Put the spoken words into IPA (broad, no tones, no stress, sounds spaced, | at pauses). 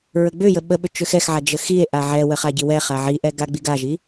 ɹ ə ɡ͡b ʏ j ə ɓ ə ɓ ʏ t͡ʃ ʏ x ɛ x ʕ a d͡ʒ ə x i e̯ ʔ a ʕ ɛ w ə χ a ɟ i w ɛ χ a ʕ i ʔ ɛ ɡ a ɡ͡b i ɡ a ʒ i